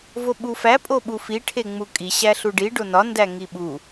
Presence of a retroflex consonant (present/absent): present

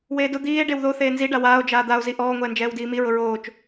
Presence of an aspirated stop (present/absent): absent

